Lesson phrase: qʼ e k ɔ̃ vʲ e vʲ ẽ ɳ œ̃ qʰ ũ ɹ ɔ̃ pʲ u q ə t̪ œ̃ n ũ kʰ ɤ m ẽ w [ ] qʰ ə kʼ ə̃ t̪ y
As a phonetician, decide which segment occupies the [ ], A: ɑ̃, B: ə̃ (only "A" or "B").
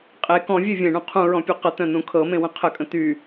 B